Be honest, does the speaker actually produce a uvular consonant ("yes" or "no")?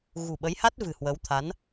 no